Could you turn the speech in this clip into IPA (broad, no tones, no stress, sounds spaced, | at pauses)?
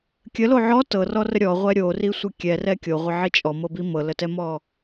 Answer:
kʲ ə l o ʕ ɔ t ɤ r ɔ r ə ɾʲ ɔ ʁʷ ɛ ɾʲ o r i sʷ ə kʲ ɛ r ɛ kʲ o ʁʷ ə ʕ i t͡ʃʼ ɔ m ɤ b i m ɤ l ə t ɛ m ɔ